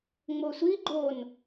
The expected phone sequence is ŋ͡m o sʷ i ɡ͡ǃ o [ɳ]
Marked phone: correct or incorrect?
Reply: incorrect